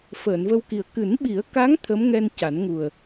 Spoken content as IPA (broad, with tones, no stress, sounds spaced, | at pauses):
f əː˨˩˨ n v ə˧ w k i˨˩ ə̯ k ɨ˨˩˦ n ɓ i˨˩˦ ə̯ k a˧˥ ŋ t̪ʰ ə˧˥ m ŋ ɛ˧ n c a˨˩˦ n ŋ u˨˩ ə̯